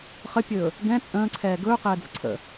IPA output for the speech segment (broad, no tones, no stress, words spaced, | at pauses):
χəpʲɵː | ɡɛ̃ t͡sʼə̃ːǀʰɛː ɡɵːqɛːd͡zə̰ ǀʰə̰